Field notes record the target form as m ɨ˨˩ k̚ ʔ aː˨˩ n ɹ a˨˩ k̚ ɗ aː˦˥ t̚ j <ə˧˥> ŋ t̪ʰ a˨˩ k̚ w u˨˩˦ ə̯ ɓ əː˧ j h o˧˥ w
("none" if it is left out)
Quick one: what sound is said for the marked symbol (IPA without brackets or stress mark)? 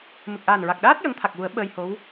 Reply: ə˧˥